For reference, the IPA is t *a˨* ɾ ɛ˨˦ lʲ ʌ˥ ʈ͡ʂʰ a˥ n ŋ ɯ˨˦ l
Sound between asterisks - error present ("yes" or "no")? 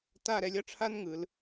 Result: yes